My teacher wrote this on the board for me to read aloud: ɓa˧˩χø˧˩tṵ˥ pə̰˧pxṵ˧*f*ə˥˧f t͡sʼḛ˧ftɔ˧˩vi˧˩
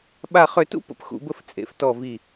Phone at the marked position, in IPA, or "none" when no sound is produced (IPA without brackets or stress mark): b